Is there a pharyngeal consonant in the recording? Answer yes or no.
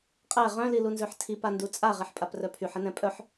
yes